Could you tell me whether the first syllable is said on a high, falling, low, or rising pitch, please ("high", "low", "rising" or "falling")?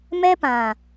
high